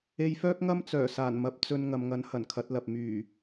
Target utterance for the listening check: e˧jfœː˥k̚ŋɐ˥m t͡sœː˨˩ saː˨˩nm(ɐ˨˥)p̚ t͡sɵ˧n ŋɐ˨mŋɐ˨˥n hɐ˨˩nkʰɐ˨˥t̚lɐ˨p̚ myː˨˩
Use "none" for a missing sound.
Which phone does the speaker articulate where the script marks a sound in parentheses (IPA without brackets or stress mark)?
ɐ˨˥